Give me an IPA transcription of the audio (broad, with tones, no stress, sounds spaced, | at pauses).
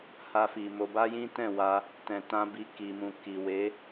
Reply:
h a˧ f i˨ m o˧ b a˦ j ĩ˦ t ɛ̃˦˨ w a˧ | t ɛ̃˨ t ã˧ b i˧ k i˨ m ũ˨ k i˨ w e˨˦